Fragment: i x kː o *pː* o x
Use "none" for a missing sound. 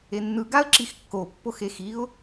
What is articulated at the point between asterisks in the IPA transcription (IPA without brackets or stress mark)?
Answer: pː